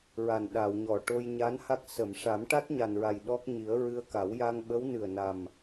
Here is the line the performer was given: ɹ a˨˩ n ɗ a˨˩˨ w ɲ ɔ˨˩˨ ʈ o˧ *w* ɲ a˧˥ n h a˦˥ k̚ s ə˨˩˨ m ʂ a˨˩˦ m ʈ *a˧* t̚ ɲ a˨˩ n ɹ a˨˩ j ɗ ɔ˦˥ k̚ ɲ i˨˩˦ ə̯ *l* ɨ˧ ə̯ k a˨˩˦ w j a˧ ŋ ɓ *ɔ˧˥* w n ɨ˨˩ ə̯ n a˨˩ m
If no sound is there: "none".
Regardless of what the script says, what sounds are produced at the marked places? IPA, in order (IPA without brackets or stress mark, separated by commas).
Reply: j, a˦˥, ɹ, ə˧˥